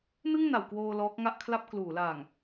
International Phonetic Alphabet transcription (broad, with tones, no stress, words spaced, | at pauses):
nɯ˥˩ŋna˩˦wkwoː˧ lɔː˦˥k̚ŋa˥˩ʔkʰla˥˩p̚ kluː˩˦laː˨˩ŋ